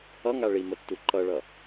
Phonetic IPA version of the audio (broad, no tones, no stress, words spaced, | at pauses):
ʌŋa ɭi mətːuǃʌɭʌ